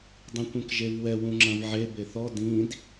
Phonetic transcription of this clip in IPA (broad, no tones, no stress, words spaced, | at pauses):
dˤĩkʷĩkʒevwɛ wũŋ͡ǁɐ̃vʕe beθɔ dĩd